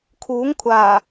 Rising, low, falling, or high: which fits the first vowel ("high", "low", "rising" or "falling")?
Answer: rising